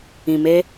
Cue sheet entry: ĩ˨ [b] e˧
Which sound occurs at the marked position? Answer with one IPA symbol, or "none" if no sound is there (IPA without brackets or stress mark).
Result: m